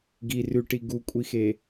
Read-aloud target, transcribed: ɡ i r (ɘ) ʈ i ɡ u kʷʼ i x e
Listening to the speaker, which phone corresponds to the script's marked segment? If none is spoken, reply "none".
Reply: ʉ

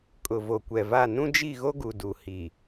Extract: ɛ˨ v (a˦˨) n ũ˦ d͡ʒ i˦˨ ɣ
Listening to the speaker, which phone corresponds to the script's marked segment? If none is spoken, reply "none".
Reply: a˦˨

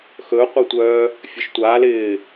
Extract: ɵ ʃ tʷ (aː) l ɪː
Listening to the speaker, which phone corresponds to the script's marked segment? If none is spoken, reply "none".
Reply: aː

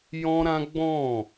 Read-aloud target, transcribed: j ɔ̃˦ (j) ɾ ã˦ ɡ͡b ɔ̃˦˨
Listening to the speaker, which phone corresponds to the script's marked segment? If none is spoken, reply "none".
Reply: none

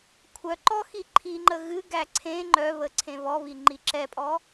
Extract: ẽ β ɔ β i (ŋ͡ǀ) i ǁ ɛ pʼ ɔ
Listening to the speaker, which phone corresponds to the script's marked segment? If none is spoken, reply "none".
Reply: ŋ͡ǃ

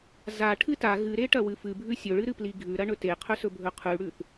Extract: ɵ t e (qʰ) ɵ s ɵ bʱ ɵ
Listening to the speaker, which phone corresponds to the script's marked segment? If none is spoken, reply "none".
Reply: qʰ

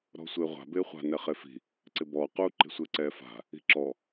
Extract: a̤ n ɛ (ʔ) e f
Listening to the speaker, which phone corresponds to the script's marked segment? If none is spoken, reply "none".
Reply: χ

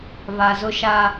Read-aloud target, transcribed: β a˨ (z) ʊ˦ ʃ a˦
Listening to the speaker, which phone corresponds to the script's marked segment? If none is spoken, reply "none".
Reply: z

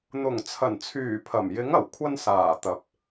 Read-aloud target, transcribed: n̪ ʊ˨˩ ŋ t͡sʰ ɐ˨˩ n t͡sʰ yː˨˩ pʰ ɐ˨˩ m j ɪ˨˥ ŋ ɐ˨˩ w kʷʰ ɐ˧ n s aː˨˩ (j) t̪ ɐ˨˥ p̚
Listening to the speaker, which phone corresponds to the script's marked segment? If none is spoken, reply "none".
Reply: none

